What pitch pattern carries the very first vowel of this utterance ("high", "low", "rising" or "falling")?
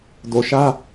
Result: low